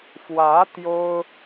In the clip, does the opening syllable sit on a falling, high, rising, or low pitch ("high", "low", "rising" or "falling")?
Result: rising